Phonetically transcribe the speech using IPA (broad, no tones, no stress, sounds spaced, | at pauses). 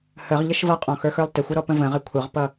h ə ʁ ʎ ə ʃ v ʌ qʼ ɔ̃ x ə˞ x ə˞ lˠ t ɪ xʷ ʌ ɾ ɔ p ə̃ v ə̃ ʁ ɪ kʷʰ ə ʁ p ʌ